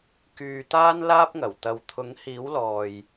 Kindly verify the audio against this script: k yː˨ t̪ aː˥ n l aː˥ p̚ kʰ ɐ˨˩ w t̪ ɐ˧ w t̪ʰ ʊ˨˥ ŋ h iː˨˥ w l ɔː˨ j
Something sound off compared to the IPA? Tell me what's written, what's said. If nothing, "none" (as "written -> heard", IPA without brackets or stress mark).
kʰ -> ŋ